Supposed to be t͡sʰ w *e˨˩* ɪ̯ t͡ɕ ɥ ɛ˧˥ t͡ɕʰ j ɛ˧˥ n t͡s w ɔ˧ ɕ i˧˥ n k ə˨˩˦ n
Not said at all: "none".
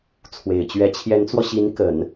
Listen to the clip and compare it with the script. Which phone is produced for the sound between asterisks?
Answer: e˨˩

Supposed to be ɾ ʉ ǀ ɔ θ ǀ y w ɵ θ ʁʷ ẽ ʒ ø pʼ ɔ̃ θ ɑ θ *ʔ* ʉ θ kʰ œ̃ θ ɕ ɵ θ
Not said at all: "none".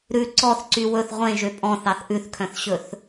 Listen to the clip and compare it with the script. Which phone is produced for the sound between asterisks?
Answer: ʔ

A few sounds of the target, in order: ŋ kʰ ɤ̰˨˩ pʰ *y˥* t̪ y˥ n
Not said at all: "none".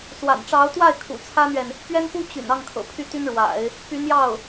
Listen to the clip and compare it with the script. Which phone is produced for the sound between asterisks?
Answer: y˥˩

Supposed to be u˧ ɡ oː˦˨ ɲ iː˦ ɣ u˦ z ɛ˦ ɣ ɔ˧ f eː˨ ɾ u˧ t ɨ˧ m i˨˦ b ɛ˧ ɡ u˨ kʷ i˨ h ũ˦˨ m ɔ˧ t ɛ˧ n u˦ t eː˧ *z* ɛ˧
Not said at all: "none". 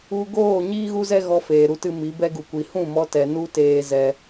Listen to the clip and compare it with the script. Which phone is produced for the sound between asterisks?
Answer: z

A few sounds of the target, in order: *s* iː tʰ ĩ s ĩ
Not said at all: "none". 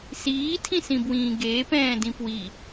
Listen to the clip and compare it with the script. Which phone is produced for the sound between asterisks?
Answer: s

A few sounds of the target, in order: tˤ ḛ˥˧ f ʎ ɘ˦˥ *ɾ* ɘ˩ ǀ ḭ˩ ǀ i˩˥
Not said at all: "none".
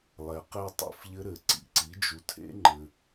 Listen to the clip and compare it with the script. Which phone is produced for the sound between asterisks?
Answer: ɾ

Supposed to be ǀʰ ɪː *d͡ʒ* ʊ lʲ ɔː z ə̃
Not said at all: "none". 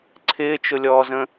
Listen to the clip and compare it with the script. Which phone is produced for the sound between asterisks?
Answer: t͡ʃ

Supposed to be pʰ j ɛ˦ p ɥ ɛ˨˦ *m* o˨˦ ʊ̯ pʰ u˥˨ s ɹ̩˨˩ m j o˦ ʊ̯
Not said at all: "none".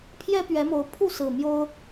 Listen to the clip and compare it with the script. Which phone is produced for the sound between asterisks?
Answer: m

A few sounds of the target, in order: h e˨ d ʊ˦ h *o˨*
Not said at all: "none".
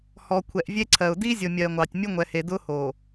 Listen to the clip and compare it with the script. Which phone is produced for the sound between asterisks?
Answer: o˨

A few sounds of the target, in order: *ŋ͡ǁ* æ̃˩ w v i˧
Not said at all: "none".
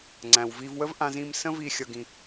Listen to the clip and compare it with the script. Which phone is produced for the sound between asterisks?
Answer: ŋ͡ǀ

